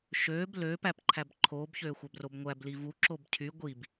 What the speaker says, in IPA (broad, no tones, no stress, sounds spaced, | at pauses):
ʃ øː b l øː p æ p ǃʰ æ b ǃʰ oː b ç øː xʷ æ b r o b ŋʷ æ b l i v u ǁ o b cʰ y ɡʷ i b